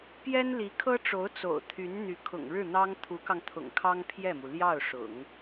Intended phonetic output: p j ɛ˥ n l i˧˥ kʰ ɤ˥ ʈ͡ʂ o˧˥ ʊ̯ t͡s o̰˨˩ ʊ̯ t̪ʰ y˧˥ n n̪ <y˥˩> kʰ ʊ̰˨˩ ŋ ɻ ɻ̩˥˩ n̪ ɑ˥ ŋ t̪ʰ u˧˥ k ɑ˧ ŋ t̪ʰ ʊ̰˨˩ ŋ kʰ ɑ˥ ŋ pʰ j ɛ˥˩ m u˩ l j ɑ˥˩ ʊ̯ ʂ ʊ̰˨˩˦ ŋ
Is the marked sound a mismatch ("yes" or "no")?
yes